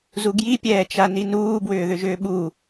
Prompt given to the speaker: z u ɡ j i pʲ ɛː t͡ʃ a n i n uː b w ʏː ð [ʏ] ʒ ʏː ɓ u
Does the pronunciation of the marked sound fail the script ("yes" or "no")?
no